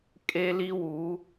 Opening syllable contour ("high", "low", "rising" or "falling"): high